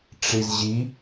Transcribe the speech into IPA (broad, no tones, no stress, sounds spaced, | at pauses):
ʈ͡ʂ i z ʑ i